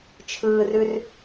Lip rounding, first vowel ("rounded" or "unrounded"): unrounded